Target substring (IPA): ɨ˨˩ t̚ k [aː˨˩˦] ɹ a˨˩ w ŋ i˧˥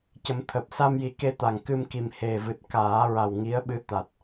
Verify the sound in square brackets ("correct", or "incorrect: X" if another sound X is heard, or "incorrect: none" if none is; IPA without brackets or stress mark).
correct